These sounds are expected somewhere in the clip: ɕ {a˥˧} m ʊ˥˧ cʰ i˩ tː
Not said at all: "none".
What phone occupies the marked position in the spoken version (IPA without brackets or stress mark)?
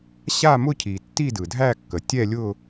a˥˧